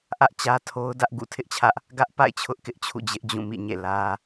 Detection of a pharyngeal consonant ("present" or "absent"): absent